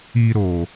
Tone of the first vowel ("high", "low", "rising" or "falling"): high